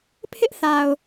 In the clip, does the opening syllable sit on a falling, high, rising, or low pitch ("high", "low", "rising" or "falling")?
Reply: high